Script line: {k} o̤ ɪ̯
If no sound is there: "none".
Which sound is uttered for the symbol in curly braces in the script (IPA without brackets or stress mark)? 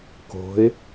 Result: k